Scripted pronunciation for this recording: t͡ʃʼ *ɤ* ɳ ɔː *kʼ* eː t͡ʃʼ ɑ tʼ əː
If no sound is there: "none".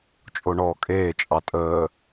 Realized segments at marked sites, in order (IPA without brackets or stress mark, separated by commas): o, kʼ